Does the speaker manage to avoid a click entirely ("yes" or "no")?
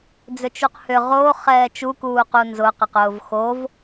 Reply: yes